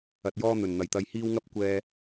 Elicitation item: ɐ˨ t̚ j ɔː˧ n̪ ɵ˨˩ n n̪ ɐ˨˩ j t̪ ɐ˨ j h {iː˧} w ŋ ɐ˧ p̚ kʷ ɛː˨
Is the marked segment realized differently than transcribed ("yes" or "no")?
no